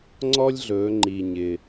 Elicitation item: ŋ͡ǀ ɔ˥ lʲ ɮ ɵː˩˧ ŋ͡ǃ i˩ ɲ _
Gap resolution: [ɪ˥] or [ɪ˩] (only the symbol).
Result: ɪ˩